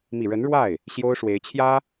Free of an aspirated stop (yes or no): no